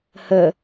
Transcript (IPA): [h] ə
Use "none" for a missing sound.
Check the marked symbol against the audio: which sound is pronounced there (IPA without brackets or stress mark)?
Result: h